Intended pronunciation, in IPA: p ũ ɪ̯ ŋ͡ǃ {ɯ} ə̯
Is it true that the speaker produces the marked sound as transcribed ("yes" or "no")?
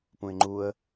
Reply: no